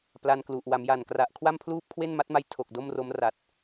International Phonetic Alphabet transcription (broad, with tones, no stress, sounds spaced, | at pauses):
p l a˧ n k l u˨˩ ʔ w a˩˦ m j a˨˩ n k r a˨˩ ʔ kʰ w a˥˩ m pʰ l uː˥˩ p̚ kʰ w e˥˩ n m a˦˥ t̚ m a˦˥ j tʰ o˨˩ k̚ d o˥˩ m r o˦˥ m r a˨˩ t̚